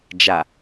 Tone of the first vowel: low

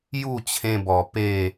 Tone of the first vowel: falling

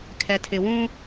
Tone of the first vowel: low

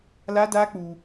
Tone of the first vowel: high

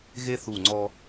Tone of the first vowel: high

